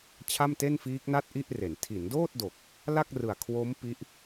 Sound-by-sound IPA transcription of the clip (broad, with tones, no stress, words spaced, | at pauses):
t͡ɕʰa˥˩mte˥˩nfiː˦˥k̚na˥˩t̚ ʔi˥˩ʔre˩˦n tʰi˩˦ndoː˥˩t̚do˨˩k̚ | la˥˩k̚rɯ˨˩a̯ kʰwo˦˥m pi˦˥ʔ